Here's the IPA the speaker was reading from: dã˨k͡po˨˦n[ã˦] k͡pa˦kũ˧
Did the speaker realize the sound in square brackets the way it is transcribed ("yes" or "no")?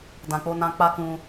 no